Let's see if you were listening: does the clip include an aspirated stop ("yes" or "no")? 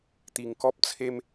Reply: yes